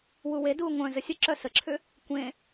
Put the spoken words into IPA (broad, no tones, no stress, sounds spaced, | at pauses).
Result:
w u w e d uː ŋʷ œ̃ z ə sʲ ə ǁ œ s ə ǁʰ ʏ | kʷ ẽ